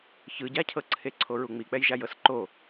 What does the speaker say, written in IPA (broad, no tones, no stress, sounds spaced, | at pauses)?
ç ɯ ɟ a cʰ ɤ ǀʰ e ǀʰ o ɹ u ŋ͡m i k͡p ɛ j ʒ a j ɤ s ǃ o